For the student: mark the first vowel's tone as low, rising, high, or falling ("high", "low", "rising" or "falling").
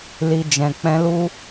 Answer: low